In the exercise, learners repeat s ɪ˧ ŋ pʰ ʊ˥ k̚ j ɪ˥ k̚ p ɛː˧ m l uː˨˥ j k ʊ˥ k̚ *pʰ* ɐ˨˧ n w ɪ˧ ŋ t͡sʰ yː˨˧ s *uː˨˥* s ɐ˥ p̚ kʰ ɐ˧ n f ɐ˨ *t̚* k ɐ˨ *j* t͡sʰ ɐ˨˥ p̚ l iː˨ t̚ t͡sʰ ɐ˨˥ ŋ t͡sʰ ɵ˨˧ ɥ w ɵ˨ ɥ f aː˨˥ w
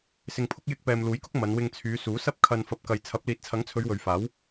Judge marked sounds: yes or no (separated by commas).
no, yes, no, yes